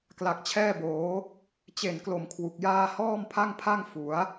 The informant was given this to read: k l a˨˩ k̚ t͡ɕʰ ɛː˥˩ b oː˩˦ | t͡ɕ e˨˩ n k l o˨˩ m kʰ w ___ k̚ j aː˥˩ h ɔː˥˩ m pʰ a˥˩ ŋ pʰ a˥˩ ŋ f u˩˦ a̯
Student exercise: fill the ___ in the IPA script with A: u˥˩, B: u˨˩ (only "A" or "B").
B